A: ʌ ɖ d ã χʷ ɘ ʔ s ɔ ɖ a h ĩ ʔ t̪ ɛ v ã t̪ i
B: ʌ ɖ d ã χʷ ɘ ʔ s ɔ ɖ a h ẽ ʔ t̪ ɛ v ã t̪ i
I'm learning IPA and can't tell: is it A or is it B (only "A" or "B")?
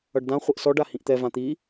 A